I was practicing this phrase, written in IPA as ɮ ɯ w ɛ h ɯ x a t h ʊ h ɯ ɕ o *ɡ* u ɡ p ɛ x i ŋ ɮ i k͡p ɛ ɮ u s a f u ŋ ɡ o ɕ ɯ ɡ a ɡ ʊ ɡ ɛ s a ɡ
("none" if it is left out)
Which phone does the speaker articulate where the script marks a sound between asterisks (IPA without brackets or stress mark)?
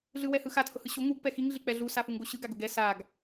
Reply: ŋ